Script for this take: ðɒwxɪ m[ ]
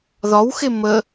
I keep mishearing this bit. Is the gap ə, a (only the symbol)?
ə